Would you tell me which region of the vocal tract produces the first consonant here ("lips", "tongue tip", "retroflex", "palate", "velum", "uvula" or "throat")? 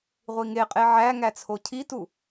uvula